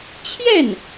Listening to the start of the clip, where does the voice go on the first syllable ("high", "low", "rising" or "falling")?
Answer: falling